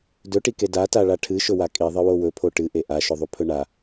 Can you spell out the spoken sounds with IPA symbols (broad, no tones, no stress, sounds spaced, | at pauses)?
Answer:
d ɵ ʈ i k e d a t a ɭ a ʈʰ ɨ ʃ ɵ w a kʼ i ðˤ ɨ w o w ɵ pʰ o ʈ ɨ ʔ e ʔ a ʃ ɵ ðˤ u pʰ ɵ ɳ a